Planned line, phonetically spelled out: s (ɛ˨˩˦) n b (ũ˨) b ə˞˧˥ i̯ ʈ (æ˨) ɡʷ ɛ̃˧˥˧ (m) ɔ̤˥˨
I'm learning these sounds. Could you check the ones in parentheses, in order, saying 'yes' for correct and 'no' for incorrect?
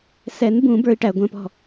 yes, no, yes, no

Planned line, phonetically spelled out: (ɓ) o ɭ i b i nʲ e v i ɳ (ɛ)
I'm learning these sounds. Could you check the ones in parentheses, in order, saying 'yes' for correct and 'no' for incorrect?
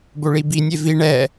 no, yes

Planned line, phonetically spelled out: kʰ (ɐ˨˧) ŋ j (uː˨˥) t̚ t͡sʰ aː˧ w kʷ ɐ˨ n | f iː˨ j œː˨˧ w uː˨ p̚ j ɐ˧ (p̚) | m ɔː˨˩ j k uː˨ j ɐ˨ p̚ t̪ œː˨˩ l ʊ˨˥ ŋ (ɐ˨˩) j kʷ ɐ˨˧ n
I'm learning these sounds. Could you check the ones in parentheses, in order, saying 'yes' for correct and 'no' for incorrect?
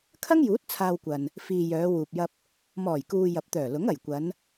no, yes, yes, yes

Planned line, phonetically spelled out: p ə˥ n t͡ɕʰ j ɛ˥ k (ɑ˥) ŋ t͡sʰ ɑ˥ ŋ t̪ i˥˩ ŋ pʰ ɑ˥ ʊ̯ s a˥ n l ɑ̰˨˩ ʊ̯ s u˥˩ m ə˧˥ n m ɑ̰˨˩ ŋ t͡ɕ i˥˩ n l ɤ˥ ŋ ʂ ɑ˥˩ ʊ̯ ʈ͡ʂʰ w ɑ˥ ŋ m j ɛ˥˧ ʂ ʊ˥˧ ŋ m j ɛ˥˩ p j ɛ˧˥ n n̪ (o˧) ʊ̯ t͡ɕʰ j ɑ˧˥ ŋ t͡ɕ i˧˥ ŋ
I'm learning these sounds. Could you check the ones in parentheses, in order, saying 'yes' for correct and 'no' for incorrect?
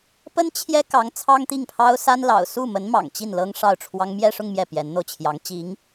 no, yes

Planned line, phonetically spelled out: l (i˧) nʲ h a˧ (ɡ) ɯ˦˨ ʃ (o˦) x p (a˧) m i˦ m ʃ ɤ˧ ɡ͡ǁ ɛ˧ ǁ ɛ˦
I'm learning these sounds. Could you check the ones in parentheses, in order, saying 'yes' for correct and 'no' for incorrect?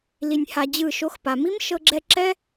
yes, no, yes, no

